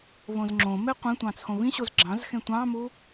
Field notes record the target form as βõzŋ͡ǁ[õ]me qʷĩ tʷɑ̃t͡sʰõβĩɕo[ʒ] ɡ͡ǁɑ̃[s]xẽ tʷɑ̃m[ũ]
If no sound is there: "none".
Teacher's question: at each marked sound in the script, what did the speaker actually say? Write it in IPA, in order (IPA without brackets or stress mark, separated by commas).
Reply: õ, z, z, u